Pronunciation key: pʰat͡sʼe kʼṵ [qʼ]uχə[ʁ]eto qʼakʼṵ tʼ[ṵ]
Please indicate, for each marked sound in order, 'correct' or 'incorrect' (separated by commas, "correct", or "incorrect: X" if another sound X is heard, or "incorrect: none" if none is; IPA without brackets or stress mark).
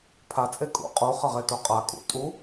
correct, correct, incorrect: u